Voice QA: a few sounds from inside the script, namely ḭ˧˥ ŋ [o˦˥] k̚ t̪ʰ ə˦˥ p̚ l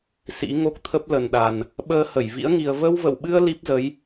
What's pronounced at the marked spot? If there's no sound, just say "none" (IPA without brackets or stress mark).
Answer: o˦˥